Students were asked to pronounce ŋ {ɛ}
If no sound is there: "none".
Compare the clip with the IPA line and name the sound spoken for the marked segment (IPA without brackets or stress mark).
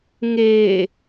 e